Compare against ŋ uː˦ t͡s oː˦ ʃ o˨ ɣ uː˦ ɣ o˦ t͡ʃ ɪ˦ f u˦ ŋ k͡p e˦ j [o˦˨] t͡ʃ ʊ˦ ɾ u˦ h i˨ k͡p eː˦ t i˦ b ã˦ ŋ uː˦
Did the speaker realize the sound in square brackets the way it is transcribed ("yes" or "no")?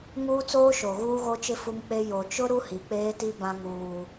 no